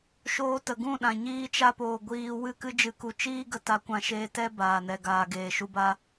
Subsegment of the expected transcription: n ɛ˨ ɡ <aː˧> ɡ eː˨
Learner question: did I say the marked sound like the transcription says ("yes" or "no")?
no